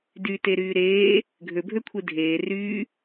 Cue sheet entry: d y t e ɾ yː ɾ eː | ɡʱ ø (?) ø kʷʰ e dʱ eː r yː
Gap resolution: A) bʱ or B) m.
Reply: A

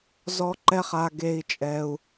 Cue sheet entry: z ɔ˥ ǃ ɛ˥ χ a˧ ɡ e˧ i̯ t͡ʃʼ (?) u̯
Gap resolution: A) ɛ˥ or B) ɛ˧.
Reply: A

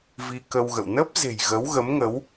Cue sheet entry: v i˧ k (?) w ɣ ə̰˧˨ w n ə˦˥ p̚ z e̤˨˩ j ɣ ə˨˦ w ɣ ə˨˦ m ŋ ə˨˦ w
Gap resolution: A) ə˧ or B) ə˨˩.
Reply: A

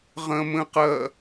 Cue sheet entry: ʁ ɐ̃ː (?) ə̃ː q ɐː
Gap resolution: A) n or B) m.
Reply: B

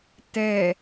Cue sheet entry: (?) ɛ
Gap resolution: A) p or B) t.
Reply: B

